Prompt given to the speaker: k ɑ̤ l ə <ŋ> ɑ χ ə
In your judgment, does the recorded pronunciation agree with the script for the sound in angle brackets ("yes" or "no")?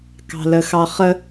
no